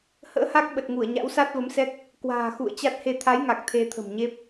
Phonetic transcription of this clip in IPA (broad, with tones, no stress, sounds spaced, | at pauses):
h ə̰ː˧˥ h a˦˥ k̚ ɓ ə˨˩ t̚ ŋ u˧˩ ə̯ ɲ a̰˧˥ w s a˦˥ t̚ v ə˨˦ m s ɛ˦˥ k̚ | k w a̤ː˨˩ x ṵ˧˨ ə̯ t͡ɕ a˦˥ t̚ h e˧ t̪ʰ a˨˦ j ŋ a˨˩ k̚ t̪ʰ e˧ t̪ʰ ə̤˨˩ m ɲ e˦˥ p̚